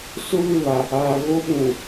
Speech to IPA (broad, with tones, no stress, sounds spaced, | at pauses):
s ʊ˦ β ɪ˦˨ β a˨ | aː˨ ɣ o˦ ɓ ũ˨